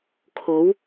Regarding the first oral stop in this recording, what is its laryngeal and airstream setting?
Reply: aspirated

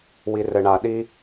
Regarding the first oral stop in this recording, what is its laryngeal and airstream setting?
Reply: implosive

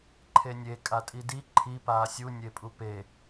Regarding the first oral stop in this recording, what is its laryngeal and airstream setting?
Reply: click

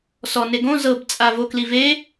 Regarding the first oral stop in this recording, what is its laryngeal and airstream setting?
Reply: plain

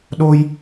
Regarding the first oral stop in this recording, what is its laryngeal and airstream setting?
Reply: implosive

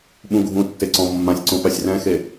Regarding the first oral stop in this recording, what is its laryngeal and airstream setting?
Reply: implosive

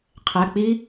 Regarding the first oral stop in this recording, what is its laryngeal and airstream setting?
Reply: aspirated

